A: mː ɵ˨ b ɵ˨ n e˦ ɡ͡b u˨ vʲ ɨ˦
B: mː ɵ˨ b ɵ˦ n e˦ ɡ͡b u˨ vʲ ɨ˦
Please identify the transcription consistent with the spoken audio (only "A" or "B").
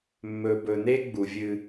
A